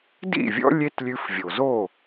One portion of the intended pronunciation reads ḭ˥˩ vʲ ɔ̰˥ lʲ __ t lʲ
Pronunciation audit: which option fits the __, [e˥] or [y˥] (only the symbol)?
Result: e˥